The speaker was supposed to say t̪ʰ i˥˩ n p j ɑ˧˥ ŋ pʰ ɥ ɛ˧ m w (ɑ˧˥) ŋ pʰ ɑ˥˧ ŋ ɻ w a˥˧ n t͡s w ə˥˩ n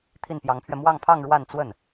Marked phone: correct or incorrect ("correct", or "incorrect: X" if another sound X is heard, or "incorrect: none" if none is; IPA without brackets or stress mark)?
incorrect: ɑ˥˧